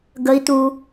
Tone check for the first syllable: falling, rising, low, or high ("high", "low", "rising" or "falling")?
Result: high